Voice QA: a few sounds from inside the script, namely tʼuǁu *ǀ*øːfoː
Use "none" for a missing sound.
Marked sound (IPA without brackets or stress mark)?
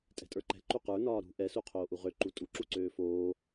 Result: ǀ